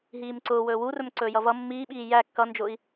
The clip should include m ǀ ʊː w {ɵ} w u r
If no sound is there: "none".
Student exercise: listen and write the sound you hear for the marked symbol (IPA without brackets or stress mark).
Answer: ɵː